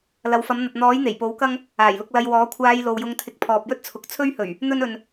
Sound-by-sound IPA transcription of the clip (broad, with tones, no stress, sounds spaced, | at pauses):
l ɐ˨˧ w f ɐ˨˥ m n̪ ɐ˨ t̚ n̪ ɔː˨˥ j n̪ e˨˩ j p o˨˥ w k ɐ˥ ŋ | aː˨˩ j l ʊ˧ k̚ l ɐ˧ j w ɔː˨˥ kʷʰ aː˧ j l o˨ w j ʊ˧ ŋ t̪ʰ ɪ˧ k̚ pʰ ɔː˨ p̚ j ɵ˥ t̚ t͡sʰ ʊ˨ k̚ t͡sʰ ɵ˥ ɥ h ɵ˨˩ ɥ | n̪ ɵ˥ n ɵ˨ n